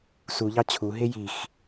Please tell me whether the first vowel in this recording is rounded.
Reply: yes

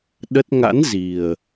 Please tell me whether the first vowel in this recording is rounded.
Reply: no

